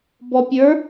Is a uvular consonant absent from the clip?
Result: yes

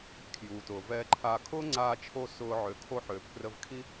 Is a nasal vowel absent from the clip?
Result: yes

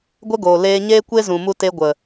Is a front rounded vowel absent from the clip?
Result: yes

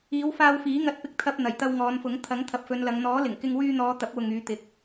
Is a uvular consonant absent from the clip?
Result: yes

